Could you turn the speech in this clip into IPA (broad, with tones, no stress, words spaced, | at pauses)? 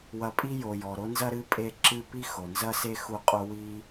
wɐ˨pʼi˦jo˩jɔ˩ ɾo˦nzɐ˦ɾɨ˦ pʼe˦ǁɨ˦ pi˦xo˩nzɐ˦se˦ xu˦qʼo˥wi˥